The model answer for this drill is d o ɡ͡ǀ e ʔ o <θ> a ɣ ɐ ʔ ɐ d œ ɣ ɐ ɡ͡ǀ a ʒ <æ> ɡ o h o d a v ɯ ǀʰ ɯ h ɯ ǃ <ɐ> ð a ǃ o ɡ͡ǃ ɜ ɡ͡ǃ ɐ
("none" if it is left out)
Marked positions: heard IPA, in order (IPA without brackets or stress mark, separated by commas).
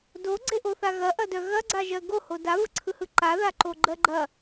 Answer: θ, ɜ, a